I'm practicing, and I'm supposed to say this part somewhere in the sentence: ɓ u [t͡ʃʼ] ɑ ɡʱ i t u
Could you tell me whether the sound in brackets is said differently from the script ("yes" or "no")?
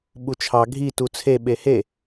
yes